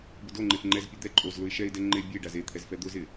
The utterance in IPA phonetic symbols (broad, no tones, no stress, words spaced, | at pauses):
bʊdoŋ͡ǃef ŋ͡ǃɛzpʲo d̪ɛ ǃʼozlʊɪ̯ ʃɛɪ̯dɛ ŋ͡ǃe bʲe ɖazet̪ʰɛz fɛd̪ʊzɪ